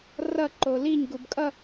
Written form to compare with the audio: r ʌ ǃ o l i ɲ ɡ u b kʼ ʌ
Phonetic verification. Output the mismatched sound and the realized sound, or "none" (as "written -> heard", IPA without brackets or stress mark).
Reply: none